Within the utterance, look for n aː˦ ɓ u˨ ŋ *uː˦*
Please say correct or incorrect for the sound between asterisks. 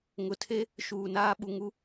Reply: incorrect